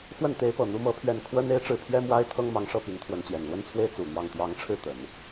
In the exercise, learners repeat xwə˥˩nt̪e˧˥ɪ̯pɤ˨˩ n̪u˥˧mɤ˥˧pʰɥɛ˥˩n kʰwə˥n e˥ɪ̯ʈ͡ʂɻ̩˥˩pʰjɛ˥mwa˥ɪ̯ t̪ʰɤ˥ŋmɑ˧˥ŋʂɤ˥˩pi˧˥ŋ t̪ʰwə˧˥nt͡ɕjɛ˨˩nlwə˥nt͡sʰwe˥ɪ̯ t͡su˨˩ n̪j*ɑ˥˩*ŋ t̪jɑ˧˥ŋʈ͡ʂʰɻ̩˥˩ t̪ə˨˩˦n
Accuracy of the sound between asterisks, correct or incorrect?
correct